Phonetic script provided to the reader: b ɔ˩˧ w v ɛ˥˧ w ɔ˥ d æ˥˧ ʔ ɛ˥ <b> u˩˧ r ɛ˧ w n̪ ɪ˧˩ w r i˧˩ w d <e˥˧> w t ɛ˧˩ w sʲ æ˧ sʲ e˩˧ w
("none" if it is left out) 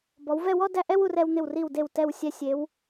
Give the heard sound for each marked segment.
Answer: w, e˧˩

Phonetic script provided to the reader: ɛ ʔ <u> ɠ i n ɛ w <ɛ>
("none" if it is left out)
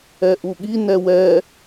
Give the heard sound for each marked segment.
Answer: u, ɛ

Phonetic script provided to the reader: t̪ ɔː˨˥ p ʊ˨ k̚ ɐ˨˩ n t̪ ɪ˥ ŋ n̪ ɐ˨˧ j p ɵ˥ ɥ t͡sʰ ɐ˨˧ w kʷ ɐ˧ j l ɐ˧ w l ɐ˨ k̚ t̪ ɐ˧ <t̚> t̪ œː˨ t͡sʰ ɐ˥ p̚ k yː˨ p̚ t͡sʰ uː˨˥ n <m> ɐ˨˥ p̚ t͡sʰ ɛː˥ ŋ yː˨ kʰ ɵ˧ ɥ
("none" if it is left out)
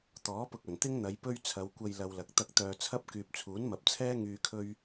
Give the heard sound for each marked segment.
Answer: k̚, m

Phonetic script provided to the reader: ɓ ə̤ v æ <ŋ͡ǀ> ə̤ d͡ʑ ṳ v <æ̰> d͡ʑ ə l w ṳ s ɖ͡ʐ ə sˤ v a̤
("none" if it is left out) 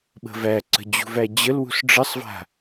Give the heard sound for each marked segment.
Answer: ǀ, æ

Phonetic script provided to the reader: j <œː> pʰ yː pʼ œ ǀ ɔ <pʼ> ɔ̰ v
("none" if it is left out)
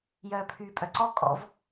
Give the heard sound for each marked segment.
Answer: œː, kʼ

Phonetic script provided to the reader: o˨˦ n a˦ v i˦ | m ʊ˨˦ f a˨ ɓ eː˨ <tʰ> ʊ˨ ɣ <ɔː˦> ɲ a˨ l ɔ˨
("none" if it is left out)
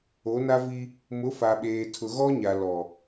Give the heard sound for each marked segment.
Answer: tʰ, ɔ˦

